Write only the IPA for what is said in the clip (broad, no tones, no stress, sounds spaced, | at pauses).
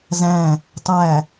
z æ̃ | tˤ æ